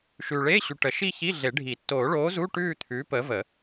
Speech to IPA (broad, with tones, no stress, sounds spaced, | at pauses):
ʃ ʉː˨ ɭ eː˧˥˧ ɕ ʉ˨ ʈ ə˨˩˦ ʃ i˥˧ ç i˧˥˧ ɮ e˨˩˦ ɖʱ i˨˩˦ tː oː˨˩˦ ɭ oː˨˥ z u˧˥˧ ʈ ʉː˥˧ t̪ʰ ʉː˨˥ p əː˨˥ v ə˨˩˦